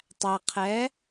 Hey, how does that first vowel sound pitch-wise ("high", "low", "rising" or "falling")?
low